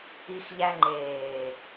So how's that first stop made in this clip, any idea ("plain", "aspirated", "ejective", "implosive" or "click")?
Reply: click